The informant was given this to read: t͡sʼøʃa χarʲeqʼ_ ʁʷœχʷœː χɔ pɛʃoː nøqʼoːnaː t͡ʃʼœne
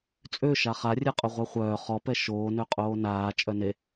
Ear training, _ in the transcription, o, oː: o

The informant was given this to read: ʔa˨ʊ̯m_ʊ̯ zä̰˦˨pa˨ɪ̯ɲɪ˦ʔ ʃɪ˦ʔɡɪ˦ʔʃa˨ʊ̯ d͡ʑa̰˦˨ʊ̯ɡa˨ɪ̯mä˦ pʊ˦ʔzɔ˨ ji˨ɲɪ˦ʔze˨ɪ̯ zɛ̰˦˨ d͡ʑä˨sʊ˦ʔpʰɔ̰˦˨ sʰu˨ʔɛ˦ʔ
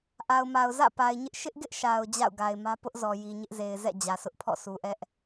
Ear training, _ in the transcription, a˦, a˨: a˨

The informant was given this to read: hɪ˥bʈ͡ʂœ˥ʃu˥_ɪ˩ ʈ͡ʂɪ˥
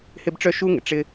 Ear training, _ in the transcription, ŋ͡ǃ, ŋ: ŋ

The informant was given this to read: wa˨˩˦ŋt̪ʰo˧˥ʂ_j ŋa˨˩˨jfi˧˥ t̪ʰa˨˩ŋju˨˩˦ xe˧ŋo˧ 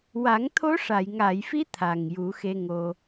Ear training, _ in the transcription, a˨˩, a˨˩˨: a˨˩˨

